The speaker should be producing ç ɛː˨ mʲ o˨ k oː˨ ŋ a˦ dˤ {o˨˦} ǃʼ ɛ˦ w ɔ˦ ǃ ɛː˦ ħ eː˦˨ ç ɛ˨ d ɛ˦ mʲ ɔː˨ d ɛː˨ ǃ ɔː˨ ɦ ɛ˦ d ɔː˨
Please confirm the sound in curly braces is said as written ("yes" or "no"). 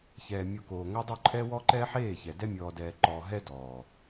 no